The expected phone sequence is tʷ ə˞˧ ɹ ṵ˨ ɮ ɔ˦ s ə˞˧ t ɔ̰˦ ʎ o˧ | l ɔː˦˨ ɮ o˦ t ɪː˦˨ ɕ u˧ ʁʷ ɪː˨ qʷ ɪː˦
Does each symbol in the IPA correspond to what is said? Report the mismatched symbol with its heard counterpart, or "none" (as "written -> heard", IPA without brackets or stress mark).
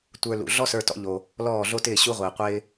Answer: ɹ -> l